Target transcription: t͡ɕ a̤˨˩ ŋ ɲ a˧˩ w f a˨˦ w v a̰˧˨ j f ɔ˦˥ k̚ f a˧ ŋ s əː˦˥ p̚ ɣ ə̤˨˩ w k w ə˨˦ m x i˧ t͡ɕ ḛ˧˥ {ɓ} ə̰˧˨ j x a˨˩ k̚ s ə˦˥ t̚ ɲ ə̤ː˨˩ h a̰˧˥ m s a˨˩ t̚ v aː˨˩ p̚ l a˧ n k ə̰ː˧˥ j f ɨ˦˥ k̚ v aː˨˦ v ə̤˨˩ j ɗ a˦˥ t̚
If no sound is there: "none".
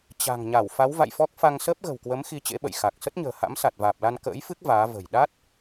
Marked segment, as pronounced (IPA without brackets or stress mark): ɓ